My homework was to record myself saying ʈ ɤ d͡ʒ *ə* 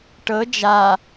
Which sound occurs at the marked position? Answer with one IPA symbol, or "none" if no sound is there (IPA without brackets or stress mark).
a